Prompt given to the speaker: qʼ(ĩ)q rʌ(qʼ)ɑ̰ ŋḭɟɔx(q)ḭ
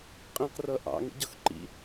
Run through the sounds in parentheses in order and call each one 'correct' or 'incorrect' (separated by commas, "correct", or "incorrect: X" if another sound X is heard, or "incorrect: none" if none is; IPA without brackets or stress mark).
correct, incorrect: ʔ, incorrect: ǃ